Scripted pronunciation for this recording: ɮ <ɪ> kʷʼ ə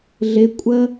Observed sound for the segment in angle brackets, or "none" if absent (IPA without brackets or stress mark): ɪ